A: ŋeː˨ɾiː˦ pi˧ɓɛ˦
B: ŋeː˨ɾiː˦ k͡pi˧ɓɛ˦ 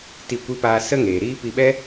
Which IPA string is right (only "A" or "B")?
A